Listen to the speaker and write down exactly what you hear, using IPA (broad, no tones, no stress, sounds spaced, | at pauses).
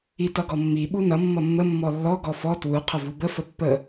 i t ʌ ɡ ɔ mː i ɓ u n ʌ mː ʌ mː ə mː ɔ lː ɔ ɡ ɔ f ɔ t w u qʰ ə v u b ə f ə pː ə